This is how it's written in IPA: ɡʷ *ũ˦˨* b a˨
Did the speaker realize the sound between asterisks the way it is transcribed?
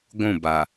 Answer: yes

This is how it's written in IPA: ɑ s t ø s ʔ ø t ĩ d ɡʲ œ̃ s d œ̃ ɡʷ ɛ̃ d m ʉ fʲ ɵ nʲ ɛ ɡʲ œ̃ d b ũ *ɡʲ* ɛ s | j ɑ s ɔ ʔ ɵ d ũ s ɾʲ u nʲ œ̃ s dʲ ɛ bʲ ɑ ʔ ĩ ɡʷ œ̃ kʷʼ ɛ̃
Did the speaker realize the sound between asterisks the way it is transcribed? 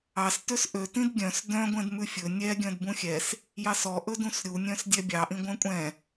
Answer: no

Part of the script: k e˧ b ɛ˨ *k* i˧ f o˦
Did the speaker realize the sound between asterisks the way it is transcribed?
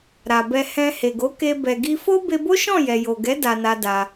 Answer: no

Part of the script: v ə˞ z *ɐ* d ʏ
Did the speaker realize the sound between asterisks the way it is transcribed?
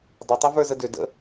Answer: no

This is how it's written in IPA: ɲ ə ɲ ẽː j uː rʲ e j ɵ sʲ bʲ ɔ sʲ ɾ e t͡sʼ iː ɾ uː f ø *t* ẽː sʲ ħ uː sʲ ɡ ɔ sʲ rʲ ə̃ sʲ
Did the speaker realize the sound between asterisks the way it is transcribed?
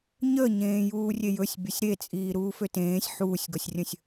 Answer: yes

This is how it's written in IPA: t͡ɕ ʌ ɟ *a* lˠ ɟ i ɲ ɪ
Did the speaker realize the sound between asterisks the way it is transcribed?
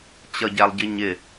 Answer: no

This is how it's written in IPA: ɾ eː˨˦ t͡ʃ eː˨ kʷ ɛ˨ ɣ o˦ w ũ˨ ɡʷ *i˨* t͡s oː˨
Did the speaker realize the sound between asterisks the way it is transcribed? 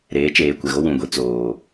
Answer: yes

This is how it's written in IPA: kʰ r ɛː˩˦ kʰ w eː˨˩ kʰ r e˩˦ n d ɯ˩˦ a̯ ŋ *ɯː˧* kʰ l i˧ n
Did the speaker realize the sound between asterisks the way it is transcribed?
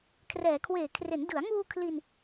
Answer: no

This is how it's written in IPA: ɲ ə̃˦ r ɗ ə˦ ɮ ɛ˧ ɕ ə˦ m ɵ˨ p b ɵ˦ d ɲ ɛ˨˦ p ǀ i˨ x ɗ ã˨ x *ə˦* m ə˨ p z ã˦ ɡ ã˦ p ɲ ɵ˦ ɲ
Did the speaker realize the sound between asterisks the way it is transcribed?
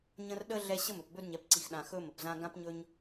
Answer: no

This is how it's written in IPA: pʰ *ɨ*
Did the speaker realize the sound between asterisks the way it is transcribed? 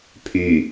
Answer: no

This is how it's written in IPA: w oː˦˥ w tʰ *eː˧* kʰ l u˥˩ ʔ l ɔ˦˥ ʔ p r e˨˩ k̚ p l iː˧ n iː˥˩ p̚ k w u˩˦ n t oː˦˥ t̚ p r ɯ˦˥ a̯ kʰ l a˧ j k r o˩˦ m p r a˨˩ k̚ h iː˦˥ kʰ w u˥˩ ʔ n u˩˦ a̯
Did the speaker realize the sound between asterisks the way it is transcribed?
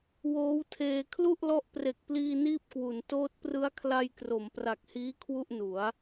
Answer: yes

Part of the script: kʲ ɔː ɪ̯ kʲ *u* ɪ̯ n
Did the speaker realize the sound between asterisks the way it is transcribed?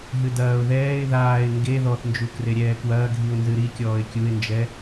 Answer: yes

